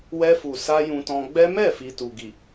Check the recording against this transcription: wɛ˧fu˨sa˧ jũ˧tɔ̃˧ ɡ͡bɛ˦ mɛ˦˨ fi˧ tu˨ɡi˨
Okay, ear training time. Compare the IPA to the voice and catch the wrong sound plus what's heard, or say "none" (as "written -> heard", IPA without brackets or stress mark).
none